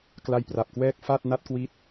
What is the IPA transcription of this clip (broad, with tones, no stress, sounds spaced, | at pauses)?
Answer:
k l a˧ j p r a˨˩ p̚ k w ɛː˥˩ k̚ f a˥˩ t̚ n a˦˥ t̚ k w i˦˥ t̚